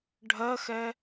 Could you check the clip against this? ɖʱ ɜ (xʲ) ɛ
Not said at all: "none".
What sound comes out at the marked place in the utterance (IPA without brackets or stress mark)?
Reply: x